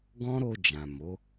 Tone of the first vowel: high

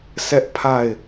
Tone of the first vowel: high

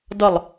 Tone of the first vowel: falling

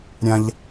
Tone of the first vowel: high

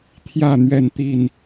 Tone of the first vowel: falling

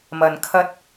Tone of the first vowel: low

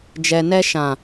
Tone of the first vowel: low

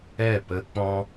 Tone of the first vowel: falling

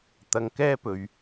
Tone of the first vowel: low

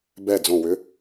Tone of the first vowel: falling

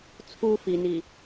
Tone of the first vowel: high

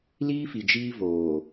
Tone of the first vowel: high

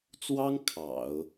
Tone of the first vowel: high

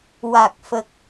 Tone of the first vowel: low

